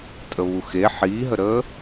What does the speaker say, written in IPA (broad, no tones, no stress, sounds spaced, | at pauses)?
tʼ ə β u x e ħ iː ɦ ə ɾ əː